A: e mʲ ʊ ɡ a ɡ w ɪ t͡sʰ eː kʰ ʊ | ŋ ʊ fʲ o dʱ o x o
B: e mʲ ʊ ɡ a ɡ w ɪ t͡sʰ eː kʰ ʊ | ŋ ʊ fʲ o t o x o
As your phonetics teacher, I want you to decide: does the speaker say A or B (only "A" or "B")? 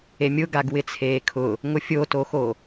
B